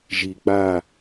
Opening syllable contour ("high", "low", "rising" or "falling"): low